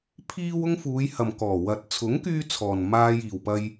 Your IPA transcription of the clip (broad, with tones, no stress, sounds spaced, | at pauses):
pʰ iː˥ w ʊ˥ ŋ f uː˨˧ j h ɐ˨ m k ɔː˨˩ w ɐ˨ t̚ t͡sʰ ʊ˨˥ ŋ k yː˧ t͡sʰ ɔː˨ n m aː˧ j iː˨ w p ɐ˥ j